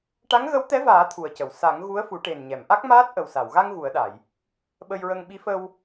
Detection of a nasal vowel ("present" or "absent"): absent